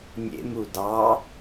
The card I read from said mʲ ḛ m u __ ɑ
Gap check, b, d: d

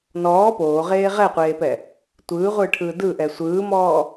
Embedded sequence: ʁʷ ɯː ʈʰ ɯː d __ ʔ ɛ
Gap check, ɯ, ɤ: ɯ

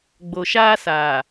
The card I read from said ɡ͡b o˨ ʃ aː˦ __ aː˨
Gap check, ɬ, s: s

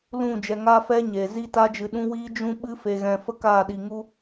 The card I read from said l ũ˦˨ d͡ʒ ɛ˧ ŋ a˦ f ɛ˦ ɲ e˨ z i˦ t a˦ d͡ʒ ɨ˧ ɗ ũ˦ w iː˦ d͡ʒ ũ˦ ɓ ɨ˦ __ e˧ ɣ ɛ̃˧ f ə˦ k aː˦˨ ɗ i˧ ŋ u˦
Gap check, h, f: f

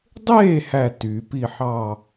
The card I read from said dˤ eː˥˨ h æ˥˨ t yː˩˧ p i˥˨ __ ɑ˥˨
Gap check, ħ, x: ħ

